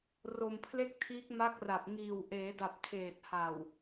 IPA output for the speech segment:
r o˧ m pʰ l e˥˩ k̚ tʰ iː˦˥ k̚ m a˦˥ k̚ r a˨˩ p̚ ŋ iː˨˩ w ʔ eː˩˦ d a˨˩ p̚ tʰ eː˨˩ t̚ h a˨˩ w

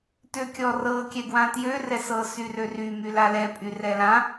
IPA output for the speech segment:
t ø kʲ ɔ r ɤ kʲ ɛ ɡ w ã t j ø r ɛ s ɤ s y r ø r y m y l a l ɛ pʼ y r ɛ l ã

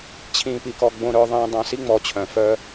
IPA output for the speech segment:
t͡ɕʰ ĩː˨ p i˨ k ɔ˨ ɡ͡b õ˨ ɾ œ˨ ðˤ ĩː˨ dˤ œ̃˨ s i˦ ŋ͡m ɔ˨ t͡ɕʰ œ̃˨ f œː˦

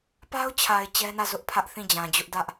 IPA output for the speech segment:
p a˦ ʊ̯ t͡ɕʰ a˨ ɪ̯ t͡ɕ ɛ˦ n ä˦˨ z ʊ˦ ʔ pʰ ä˦ ʔ θ ĩ˦˨ d͡ʑ ã˨ d͡ʑ ʊ˦ ʔ d ä˦ ʔ

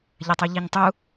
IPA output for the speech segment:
ʎ ɐ tˤ u ʎ i ɲ tˤ u

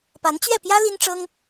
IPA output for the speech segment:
p a˧˥ n t͡ɕ ɥ ɛ˥˩ p j ä˥ l i˥ n ʈ͡ʂ ɤ˥ ŋ

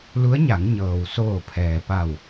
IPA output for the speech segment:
l u˧˥ ə̯ ɲ a˩˧ ŋ ɲ ɤː˩ w s oː˧˩ pʰ ɛː˩ p a˧˩ w

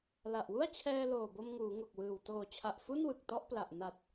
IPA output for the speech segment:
l a˨˩ ʔ w u˥˩ a̯ t͡ɕʰ ɛː˧ l oː˨˩ b o˧ m ŋ uː˩˦ ŋ o˨˩ k̚ w ɯː˨˩ w t oː˨˩ t͡ɕʰ a˨˩ ʔ f u˥˩ n w ɯ˨˩ k̚ t ɔ˥˩ ʔ p l a˨˩ ʔ n a˨˩ t̚

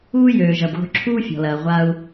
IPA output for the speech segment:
uː˥ j øː˩ ʒ ɐ˩ b ɣ o̤˧ ǁʰ uː˥ fʲ ɔ̤˩ l ɐː˩ ʁʷ a˧ u̯

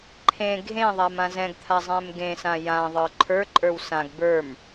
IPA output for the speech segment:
ǃʰ ẽ ɡʱ ẽ ðˤ a m ã z ɛ̃ ɡ t̪ʰ a zˤ ɛ̃ m ɡ ẽ s ã j ã ðˤ ə˞ ǃʰ ə˞ ǃʼ ə˞ w s ã ɡ b ə˞ m

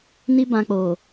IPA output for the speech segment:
n i˦ b ã˧ k͡p o˨

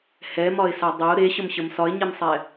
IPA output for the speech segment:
h ɛ m ɒ ɪ̯ s a dˤ ə ʊ̯ ɾ e ɕ ə m ɕ ə m s ɒ ɪ̯ ɲ e m sˤ ɛ

